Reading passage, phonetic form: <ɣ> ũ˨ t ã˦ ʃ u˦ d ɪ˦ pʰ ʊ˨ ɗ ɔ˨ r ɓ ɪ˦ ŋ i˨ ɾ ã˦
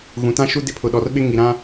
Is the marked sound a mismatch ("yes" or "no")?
no